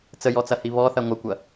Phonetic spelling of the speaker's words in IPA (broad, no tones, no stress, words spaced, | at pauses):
t͡səjɔt͡sɐhi βɔθɐ ŋʷəkʷɐ